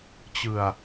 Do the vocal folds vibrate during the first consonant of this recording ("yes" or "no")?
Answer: no